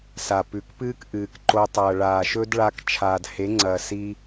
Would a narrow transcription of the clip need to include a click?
yes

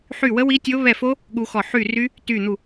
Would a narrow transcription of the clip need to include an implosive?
yes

